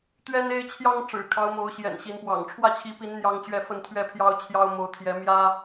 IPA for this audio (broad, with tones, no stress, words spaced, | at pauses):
t̪ɥɛ˦ne˦ɪ̯t͡ɕʰjɑ˦ŋ ʈ͡ʂɻ̩˨˩kʰɑ˦ʊ̯mo˨˦ʊ̯ɕjɛ̰˨˩n ɕi˨˦npwɑ̰˨˩ŋ ʈ͡ʂʰwä˥˨t͡ɕʰi˨˦pi˨˦n n̪jɑ˦ŋ t͡ɕɥɛ˥˨fə˥˨nt̪ʰɥɛ˥˨pʰjɑ˦ʊ̯ t͡ɕʰjɑ˦ʊ̯ mo˨˦ʊ̯t̪ʰjɛ˨˦mjä˦